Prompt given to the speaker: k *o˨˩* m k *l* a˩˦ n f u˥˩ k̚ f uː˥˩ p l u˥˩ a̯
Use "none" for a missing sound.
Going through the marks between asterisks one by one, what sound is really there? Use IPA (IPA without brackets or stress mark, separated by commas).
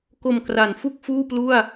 o˨˩, r